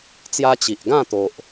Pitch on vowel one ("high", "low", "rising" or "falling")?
high